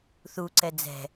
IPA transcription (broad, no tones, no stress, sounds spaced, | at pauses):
θ u ǀ ɛ d͡z ɛ̤